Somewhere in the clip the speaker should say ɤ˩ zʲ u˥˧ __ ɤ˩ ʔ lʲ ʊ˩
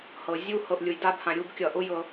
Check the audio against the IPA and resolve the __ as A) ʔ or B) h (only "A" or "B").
B